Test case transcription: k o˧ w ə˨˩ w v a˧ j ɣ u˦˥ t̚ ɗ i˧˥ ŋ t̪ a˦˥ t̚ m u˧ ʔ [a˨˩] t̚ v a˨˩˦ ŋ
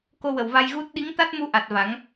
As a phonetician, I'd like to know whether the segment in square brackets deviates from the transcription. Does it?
no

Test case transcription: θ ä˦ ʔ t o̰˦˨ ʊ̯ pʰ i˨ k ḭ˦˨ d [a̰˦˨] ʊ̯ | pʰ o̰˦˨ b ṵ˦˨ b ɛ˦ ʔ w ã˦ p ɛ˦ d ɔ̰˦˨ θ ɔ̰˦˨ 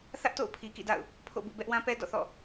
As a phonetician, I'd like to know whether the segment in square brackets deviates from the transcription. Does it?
no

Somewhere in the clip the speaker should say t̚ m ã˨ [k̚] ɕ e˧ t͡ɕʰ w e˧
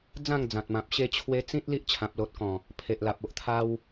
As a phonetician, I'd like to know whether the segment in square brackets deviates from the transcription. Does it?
yes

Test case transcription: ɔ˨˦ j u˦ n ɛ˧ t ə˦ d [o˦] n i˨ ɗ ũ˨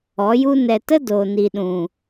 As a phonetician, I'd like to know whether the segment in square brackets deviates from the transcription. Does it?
yes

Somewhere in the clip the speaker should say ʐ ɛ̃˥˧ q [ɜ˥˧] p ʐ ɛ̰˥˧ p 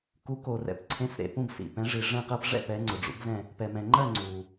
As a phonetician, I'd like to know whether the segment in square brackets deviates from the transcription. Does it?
no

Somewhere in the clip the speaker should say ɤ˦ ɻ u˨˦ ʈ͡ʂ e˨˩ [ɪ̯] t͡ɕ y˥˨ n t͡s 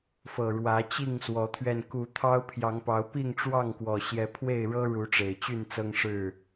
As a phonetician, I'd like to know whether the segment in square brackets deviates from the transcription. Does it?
no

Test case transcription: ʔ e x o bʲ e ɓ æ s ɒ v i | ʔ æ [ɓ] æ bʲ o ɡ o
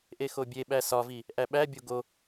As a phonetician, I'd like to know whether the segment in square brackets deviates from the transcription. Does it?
no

